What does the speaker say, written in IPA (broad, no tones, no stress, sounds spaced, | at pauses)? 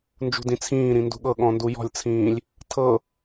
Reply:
n d͡ʒ ṳ d ĩ t͡sʰ ĩː ɾ ĩ n d ṳ ɠ ɤ ɠ ɔ̃ n d u j ɔ̤ lʲ t͡sʰ ĩː lʲ | tʰ ɤ